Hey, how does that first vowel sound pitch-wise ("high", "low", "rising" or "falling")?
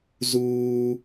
high